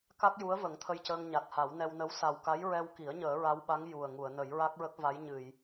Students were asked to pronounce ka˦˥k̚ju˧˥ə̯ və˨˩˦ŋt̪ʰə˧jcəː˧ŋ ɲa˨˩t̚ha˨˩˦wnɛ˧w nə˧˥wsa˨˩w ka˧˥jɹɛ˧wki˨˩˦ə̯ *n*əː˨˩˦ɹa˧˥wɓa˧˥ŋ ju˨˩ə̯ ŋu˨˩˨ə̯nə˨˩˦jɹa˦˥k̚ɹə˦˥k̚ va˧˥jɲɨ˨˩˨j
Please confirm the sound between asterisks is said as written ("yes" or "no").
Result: no